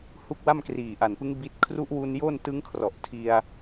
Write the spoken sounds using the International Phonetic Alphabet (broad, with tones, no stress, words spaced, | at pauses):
hu˦˥k̚wa˥˩m kriː˨˩ʔa˨˩npɯ˦˥ŋ bi˦˥t̚ kʰru˦˥ʔwu˧n jo˥˩ntɯ˦˥ŋkʰrɔ˨˩ʔ tʰi˧a̯